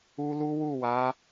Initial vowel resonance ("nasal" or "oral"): oral